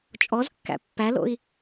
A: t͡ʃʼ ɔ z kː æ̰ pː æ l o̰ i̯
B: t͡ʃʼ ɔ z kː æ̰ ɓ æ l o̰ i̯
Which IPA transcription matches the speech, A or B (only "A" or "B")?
A